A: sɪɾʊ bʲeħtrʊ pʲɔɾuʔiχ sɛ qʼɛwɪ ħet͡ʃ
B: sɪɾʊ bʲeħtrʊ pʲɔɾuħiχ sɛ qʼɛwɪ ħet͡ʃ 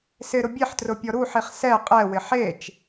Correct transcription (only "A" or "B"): B